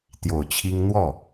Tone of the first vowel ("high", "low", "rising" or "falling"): low